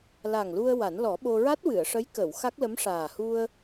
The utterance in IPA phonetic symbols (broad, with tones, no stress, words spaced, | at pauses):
la˨˩ŋlu˧ə̯ wa˨˩˦nlɔ˨˩˦ɓo˧ ɹa˦˥t̚wɨ˨˩˨ə̯ ʂə˧˥jkə˨˩˨w xa˦˥k̚lə˧˥mʂaː˨˩ hu˧ə̯